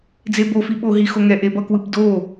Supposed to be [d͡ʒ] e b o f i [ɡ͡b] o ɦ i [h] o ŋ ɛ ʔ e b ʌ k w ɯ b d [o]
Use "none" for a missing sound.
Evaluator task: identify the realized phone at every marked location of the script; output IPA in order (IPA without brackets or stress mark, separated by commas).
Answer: d͡z, ɓ, x, o